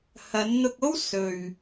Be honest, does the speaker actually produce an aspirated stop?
no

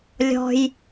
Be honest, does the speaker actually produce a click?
no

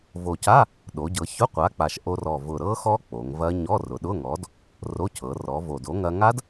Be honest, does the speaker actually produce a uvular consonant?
yes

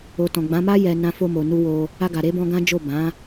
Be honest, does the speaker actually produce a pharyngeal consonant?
no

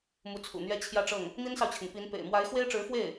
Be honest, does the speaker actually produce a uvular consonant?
no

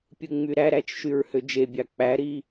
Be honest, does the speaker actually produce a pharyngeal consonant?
no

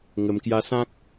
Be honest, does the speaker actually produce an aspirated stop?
no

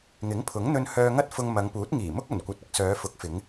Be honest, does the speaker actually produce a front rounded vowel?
yes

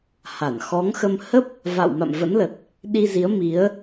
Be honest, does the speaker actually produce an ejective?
no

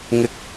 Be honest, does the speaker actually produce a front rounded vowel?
no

